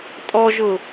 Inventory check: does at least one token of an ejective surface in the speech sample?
yes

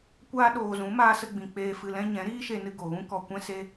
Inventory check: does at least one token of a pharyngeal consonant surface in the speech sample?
no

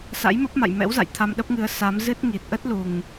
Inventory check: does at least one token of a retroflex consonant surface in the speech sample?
no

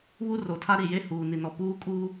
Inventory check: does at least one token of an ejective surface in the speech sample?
yes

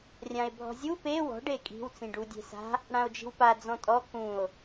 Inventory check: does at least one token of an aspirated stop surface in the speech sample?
no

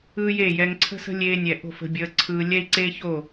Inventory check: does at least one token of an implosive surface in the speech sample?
no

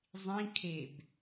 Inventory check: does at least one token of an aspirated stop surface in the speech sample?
yes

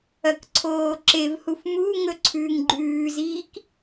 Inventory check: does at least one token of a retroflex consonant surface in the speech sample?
no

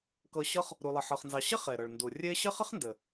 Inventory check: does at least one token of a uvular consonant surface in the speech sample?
yes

